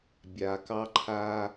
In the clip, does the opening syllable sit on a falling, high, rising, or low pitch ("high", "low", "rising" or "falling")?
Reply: low